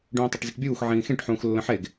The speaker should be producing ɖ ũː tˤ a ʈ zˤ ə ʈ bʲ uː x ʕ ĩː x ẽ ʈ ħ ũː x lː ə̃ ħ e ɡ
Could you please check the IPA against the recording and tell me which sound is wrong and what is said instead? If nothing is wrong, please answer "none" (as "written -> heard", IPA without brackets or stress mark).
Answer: none